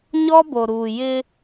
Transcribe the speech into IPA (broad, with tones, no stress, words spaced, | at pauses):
ɲɔ˦bo˨ɾuː˨ jɪ˦